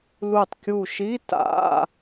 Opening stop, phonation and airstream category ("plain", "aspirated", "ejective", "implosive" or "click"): plain